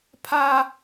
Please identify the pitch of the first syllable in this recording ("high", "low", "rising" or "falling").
high